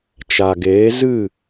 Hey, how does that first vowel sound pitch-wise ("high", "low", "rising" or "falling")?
low